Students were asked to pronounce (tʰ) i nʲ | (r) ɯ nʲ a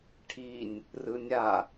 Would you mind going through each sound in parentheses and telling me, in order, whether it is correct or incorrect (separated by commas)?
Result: incorrect, correct